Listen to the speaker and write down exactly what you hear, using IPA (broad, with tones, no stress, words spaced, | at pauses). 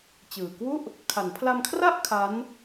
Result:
t͡ɕɯː˨˩kwu˥˩ʔ | kʰa˩˦npʰla˧mkʰra˥˩ʔ kʰa˦˥n